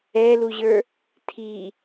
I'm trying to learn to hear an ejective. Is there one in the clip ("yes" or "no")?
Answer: no